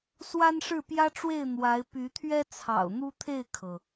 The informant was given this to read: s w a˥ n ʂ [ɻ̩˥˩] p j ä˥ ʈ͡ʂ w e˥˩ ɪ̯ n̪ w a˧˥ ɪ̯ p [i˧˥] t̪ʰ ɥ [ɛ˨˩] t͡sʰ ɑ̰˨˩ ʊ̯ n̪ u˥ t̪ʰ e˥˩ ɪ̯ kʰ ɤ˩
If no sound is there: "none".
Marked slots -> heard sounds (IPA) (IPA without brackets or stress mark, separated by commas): ɻ̩˥˩, y˧˥, ɛ˥